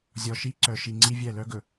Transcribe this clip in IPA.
zʲ ɔ˨ ʃ i˦ ǀ œ˨ ʃ i˨ ŋ͡ǀ i˦ vʲ ɛ˦˨ l œ˦ ɡ ɵ˨

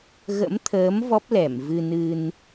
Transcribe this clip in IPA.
ɣ ə̰˧˥ m t̪ʰ əː˨˦ m v ɔ˦˥ p̚ l ɛ˧˩ m v ɨ˧ n ɨ˧ n

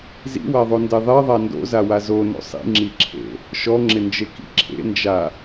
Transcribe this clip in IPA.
z ḭ w a ðˤ o n d e ðˤ e ðˤ a n d o̰ z a w a z o n o̰ sˤ ḭ ŋ͡ǁ i ǁʰ ḛ | ʃ ɔ ŋ͡ǁ ɪ n d͡ʒ e k ḭ ǁʰ ḛ n d͡ʒ a

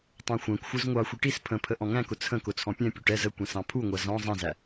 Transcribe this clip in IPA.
tˤ æ̃ xʷ æ̃ kʷ xʷ ə˞ z ŋʷ ɑ xʷ i ʈ i s pʰ ə̃ pʰ ə ʔ ɔ̃ ŋ æ̃ k ʊ t͡sʰ ə̃ k ʊ t͡sʰ ɔ̃ pʲ ɛ̃ pʲ u ʈ ɛ z ə kʷ ɛ̃ s ɑ̃ pʰ u ŋʷ æ z ɔ̃ zˤ ɛ̃ z æ

